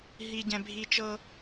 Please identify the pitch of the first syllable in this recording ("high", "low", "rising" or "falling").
low